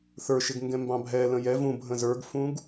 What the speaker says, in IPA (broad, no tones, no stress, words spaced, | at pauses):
θə˞ʃɪɡ ŋɡɛ̃mbɑ̃bʱɛlə̃ jɛ vũbʱə̃ zə˞ɡfũɡ